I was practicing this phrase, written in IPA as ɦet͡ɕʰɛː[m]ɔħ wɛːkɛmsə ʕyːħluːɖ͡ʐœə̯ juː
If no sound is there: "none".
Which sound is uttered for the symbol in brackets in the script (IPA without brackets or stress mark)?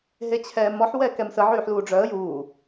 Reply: m